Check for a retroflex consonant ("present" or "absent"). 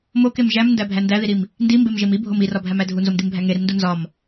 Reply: absent